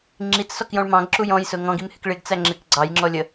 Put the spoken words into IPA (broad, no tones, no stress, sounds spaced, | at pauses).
ŋ͡ǁ i t͡s s ɔ k j ɔ̃ ɭ m ɑ̃ ɡ ǁ u j ɔ̃ j s ʊ ŋ ɔ̃ ɡ i m h ɪ k ɭ ɪ ɡ t͡s æ ŋ͡ǁ ɪ k ɡ͡ǀ ɑ j ŋ͡ǁ ɔ lʲ ə